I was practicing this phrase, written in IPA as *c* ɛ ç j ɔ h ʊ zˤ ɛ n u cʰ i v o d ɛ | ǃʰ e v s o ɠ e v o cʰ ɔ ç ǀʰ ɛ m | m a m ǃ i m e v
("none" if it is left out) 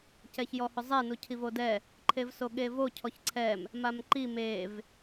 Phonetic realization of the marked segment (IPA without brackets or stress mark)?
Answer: c